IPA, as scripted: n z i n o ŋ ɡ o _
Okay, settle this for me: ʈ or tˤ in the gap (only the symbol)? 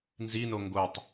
tˤ